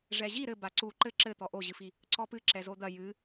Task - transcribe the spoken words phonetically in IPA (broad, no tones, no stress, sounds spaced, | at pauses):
ʐ ɛ ʑ i ɾ ɘ b a ǀ u ǃ ɘ ǁ ɘ t̪ ɔ ʔ o ʑ ɨ f i | ǀ ɔ p ɨ ǁ ɛ z o d̪ ɐ j ɨ